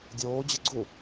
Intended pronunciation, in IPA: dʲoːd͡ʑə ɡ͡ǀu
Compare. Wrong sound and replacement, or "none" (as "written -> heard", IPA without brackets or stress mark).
none